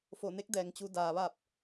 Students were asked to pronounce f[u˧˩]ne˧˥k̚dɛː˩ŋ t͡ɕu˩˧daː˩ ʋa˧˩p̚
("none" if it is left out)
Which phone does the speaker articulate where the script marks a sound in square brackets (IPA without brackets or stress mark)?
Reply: o˧˩